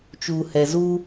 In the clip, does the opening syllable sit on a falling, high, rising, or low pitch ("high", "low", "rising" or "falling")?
low